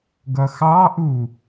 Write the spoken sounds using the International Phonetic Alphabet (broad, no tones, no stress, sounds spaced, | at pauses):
ɡ ʌ x ɑ ʔ u